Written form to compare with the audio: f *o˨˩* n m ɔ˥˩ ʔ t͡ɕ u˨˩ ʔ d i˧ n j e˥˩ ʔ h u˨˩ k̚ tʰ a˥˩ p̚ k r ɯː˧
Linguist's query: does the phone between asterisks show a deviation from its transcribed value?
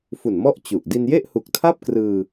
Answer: yes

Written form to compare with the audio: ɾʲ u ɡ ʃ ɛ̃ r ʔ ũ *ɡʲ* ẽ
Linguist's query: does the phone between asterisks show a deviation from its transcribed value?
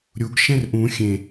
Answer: yes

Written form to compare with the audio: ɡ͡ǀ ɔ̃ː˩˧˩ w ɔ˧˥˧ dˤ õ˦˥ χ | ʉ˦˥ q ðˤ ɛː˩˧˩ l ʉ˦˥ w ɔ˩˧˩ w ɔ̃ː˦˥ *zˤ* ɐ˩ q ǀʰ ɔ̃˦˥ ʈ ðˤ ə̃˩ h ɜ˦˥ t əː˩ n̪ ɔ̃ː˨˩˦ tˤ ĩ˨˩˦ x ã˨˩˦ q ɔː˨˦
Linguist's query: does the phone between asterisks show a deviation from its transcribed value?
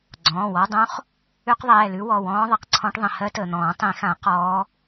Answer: yes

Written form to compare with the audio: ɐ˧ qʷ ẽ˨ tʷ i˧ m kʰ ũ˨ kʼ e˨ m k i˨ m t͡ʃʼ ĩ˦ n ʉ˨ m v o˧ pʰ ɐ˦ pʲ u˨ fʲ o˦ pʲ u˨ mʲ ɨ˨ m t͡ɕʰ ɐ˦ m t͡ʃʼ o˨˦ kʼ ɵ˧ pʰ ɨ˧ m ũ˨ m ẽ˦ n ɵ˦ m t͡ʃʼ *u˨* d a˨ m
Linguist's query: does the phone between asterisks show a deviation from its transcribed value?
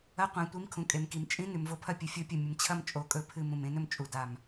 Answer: no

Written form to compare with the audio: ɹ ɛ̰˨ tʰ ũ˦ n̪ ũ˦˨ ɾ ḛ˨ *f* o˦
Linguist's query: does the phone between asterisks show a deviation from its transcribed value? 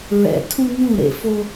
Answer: no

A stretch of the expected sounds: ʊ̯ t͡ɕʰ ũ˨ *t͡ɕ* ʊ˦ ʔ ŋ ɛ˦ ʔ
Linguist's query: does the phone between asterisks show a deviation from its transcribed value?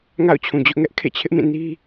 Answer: yes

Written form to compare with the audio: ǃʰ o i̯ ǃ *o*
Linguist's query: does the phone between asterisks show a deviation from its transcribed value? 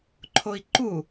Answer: yes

